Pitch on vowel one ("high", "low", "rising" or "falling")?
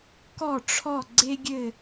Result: falling